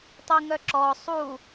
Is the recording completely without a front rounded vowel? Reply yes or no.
no